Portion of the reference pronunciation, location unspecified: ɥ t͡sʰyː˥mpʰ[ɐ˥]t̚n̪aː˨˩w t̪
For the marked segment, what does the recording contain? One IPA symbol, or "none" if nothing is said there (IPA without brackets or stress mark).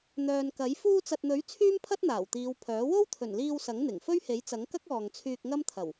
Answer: ɐ˥